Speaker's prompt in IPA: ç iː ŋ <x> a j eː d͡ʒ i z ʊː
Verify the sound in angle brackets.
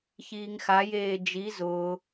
correct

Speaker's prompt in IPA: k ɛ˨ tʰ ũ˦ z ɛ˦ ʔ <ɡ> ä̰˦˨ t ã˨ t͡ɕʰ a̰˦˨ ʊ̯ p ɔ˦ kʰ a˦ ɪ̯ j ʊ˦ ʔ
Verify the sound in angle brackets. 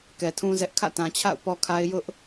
incorrect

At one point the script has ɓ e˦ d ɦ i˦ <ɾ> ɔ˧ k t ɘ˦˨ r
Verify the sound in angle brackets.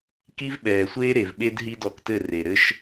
incorrect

